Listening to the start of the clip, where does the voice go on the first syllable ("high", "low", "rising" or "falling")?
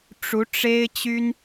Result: rising